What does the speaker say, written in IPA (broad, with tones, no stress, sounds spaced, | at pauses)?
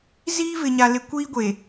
z iː˦ v ɪ˨ ɲ a˨ l ɪ˨ kʷ iː˦ ɡʷ e˨